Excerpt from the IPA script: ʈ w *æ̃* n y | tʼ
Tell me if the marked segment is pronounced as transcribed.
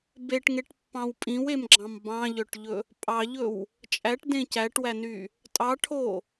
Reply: no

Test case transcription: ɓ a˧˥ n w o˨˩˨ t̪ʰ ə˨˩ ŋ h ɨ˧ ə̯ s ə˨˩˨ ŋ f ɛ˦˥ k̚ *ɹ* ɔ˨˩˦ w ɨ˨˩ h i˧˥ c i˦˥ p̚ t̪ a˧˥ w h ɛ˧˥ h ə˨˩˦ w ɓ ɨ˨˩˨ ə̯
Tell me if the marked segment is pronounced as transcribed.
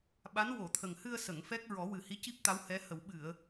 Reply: yes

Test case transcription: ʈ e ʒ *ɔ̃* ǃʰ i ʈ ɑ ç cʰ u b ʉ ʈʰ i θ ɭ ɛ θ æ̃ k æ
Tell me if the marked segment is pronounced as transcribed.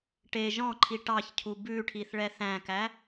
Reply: yes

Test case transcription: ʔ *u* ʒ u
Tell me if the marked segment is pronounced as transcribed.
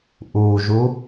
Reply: yes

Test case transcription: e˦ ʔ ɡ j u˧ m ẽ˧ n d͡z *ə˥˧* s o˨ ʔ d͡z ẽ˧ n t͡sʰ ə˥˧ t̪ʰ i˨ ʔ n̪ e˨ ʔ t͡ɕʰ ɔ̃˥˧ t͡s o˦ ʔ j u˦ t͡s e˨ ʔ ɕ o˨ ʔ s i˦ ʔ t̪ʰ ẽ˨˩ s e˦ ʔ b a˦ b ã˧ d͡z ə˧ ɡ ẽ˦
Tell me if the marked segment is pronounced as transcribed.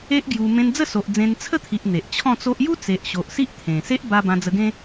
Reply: yes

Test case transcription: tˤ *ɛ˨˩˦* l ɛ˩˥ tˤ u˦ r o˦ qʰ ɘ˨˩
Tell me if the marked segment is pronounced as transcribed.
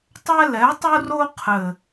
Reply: no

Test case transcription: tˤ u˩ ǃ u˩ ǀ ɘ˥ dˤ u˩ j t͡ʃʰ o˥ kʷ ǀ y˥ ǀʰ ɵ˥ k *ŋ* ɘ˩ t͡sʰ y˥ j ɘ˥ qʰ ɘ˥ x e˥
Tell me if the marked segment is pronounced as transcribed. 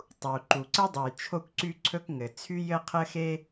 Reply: yes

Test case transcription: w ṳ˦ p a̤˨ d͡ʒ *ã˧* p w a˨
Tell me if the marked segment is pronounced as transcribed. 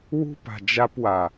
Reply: no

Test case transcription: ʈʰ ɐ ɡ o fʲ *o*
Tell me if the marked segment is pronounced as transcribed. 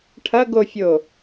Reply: yes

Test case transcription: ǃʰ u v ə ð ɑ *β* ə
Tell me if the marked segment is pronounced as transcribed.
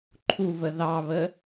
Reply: yes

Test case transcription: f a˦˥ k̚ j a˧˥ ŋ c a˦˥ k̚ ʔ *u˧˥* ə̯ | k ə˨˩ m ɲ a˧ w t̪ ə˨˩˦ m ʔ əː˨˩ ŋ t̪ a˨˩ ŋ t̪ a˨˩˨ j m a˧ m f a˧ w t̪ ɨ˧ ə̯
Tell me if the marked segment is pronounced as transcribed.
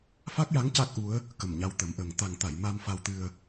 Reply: yes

